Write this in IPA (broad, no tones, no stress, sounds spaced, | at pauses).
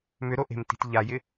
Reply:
m ʏ ɾ o ʔ e̤ m t i̤ t ʎ a j ɪ